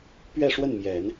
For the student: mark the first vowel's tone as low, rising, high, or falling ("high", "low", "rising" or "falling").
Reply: falling